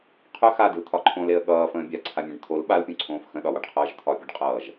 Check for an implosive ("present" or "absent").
present